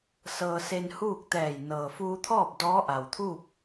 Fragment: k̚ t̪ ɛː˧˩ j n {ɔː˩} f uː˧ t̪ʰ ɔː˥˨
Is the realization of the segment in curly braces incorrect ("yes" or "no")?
yes